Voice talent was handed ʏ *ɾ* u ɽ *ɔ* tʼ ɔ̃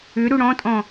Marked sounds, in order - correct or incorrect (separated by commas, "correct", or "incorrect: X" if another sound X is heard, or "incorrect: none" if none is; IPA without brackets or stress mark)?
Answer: correct, incorrect: ɔ̃